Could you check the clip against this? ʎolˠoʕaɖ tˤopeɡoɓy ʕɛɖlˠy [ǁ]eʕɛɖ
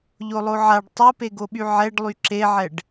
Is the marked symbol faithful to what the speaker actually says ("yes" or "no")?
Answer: yes